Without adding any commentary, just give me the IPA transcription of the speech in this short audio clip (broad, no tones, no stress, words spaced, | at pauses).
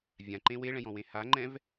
vʲãǃẽ weɭɛ̃jɔ̃wẽ haŋ͡ǃɛ̃v